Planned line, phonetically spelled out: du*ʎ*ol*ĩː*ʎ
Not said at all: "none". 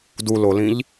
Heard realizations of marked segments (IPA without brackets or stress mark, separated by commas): l, ĩ